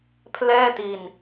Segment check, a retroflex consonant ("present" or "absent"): absent